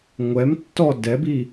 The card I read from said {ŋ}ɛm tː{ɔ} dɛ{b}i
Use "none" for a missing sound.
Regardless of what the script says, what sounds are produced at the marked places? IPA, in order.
ŋʷ, ɔ, b

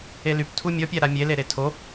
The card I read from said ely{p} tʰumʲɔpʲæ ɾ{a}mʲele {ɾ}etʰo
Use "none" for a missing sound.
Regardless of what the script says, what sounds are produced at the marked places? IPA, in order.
p, a, ɾ

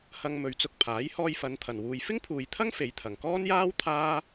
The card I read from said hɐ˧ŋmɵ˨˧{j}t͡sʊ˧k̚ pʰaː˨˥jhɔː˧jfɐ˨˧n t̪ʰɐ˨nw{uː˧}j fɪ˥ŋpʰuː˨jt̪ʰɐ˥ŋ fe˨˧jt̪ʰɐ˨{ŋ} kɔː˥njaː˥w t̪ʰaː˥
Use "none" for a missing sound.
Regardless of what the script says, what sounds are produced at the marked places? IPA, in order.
ɥ, uː˧, ŋ

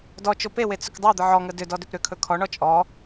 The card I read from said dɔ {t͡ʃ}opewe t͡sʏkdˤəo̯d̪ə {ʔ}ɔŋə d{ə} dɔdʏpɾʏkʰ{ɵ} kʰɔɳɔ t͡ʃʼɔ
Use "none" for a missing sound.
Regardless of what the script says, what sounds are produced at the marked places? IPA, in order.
t͡ʃ, ʕ, ʏ, ɵ

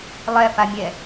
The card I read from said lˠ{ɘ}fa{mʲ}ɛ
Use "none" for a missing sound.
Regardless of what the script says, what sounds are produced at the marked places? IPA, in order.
ɛ, mʲ

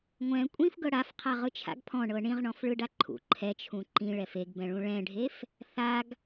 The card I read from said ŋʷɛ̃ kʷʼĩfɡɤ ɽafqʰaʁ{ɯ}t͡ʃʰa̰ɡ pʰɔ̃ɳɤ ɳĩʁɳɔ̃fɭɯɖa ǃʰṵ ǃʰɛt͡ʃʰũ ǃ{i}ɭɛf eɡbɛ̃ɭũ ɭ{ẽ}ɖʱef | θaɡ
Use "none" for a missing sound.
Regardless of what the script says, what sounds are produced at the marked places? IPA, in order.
ɯ, ĩ, ɛ̃

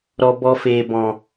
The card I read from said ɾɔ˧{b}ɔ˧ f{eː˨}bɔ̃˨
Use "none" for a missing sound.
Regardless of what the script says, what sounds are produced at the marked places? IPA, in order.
b, eː˨

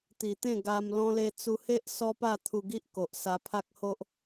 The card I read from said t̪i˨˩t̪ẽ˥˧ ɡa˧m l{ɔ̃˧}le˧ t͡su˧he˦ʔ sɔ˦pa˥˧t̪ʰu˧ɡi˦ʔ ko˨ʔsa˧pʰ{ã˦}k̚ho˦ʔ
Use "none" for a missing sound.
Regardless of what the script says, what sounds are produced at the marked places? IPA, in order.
ɔ̃˧, a˦

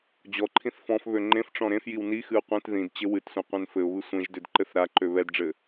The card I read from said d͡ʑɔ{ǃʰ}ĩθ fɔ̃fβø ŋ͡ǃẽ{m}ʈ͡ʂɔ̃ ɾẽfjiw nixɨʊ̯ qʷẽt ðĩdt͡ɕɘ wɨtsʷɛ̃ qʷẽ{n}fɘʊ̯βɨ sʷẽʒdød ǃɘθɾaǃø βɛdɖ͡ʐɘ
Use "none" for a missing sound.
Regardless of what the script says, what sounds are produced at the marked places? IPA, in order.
ǃʰ, f, n

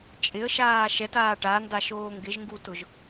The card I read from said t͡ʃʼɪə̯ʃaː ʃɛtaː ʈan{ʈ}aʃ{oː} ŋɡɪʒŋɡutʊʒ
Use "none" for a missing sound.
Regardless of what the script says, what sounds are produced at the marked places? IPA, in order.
d, oː

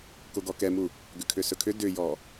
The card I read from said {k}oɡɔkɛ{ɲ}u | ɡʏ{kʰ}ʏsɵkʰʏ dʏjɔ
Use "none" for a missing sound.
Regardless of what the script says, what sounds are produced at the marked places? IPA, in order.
k, m, kʰ

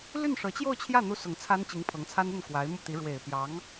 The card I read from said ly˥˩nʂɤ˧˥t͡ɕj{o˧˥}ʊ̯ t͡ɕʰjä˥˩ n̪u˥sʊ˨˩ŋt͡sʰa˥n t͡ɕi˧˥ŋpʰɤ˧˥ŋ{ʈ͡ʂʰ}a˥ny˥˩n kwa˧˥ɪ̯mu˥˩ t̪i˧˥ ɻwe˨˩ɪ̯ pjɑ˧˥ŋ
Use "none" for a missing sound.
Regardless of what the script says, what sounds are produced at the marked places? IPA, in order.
o˥˧, t͡sʰ

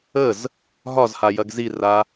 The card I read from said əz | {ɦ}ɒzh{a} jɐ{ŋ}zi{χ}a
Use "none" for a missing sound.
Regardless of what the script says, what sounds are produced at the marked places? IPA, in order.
ɦ, a, ɡ, r

